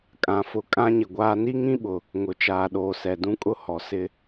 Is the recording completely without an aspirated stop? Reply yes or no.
yes